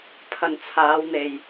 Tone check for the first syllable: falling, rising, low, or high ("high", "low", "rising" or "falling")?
low